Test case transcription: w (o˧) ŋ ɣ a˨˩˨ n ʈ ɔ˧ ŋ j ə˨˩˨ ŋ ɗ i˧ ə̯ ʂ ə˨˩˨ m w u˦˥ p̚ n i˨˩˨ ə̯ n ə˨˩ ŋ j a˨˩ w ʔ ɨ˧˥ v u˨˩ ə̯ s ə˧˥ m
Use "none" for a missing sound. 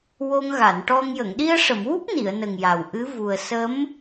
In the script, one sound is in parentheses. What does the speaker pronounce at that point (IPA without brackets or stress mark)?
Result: o˧